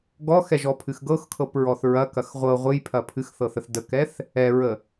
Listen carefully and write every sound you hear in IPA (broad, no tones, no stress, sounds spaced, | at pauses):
ɡ ɔ x ɛ ʒ ɔ pʰ ɨ x ɡ ɤ x kʰ ɤ p ɹ ɔ θ ɹ ɐ k ɐ x ʁʷ ɤ ʁʷ ɨ j pʰ ɐ pʰ ɨ x θ ɤ θ ə θ d ə k ɛ θ | ɛ ɹ ə